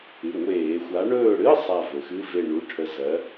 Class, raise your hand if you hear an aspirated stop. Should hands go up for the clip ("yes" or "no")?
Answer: yes